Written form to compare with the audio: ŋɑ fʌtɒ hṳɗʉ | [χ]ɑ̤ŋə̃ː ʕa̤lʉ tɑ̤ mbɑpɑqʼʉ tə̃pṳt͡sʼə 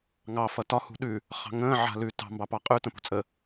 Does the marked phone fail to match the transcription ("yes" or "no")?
no